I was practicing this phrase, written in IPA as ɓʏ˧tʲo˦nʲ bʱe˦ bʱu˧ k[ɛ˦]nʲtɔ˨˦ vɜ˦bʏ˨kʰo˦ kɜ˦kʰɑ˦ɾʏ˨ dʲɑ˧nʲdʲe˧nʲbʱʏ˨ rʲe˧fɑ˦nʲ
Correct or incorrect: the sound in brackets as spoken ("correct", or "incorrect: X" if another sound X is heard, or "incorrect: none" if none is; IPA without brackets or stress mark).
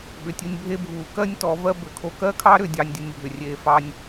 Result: incorrect: ɜ˦